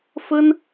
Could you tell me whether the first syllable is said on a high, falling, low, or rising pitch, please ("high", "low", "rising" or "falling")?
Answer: high